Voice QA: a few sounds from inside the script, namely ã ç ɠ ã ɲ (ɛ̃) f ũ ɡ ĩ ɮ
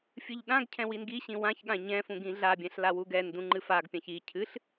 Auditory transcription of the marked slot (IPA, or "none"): ɛ̃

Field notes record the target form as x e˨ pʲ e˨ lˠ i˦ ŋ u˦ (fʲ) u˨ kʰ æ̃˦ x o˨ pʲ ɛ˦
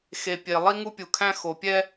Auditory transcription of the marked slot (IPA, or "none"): pʲ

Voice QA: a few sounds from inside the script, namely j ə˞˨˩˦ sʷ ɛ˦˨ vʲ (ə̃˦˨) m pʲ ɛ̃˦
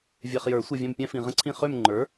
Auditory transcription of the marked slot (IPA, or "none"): ɛ̃˦˨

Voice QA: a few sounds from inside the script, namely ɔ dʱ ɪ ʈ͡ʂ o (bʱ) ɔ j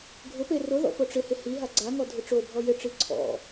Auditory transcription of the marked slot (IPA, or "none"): bʱ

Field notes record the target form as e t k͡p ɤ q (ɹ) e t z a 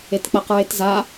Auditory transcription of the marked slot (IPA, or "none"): ɹ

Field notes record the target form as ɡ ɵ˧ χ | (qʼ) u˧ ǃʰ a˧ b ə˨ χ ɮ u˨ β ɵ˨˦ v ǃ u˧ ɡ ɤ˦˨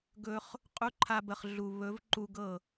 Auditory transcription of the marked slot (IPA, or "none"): qʼ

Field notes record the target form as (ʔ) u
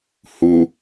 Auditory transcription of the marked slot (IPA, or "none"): h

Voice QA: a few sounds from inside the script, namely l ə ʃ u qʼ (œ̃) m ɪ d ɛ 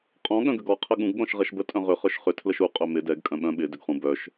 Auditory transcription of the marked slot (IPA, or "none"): œ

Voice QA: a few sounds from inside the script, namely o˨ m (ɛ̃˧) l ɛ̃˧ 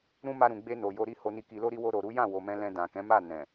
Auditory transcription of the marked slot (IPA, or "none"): ɛ̃˧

